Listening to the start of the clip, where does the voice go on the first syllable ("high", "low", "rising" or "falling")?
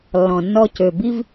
low